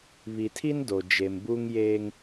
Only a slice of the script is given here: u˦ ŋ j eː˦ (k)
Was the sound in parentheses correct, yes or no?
no